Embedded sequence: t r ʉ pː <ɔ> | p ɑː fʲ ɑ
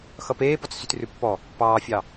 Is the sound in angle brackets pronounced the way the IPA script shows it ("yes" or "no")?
yes